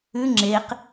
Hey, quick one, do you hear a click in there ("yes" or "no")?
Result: yes